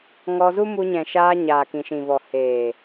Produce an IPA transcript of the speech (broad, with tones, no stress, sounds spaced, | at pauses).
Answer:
ŋ ɔ˧ z u˦ m u˧ ɲ ɛ̃˨ ʃ aː˧ ɲ aː˨ k ĩ˨ ʃ ĩ˨ v ɔ˨ h eː˨